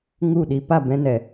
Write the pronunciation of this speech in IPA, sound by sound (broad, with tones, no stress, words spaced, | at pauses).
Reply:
ŋu˦˨ɗi˧ pa˦˨bɛ̃˧nɛ˨